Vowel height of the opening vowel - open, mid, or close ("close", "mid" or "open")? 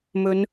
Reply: mid